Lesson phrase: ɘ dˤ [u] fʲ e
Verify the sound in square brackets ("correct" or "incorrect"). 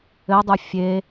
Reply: correct